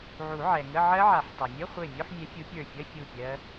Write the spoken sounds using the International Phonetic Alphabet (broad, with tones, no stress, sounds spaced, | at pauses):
ʕ u˨˩˦ ʕ ɛ˩ ŋ ə˧˥˧ ʕ ɜ˦˥ ʕ a˨˩˦ ħ tˤ a˩ mʲ ʌ˧˥˧ χʷ e˧˩ mʲ o˧˥˧ ħ mʲ ɛ˨˦ fʲ u˨˦ pʲ ə˞˧˩ fʲ ʌ˧˥˧ fʲ u˧˩ pʲ ɜ˦˥